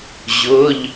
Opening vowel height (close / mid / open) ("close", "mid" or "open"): close